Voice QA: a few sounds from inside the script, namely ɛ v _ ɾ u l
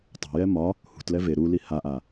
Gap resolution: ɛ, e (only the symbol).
e